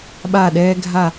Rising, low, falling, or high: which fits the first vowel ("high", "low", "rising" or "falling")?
falling